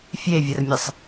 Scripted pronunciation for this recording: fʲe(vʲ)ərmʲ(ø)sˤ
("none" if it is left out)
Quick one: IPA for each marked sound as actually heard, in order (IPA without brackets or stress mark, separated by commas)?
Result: vʲ, ə